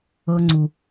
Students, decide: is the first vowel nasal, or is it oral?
oral